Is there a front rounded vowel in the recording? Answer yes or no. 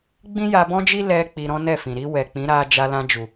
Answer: no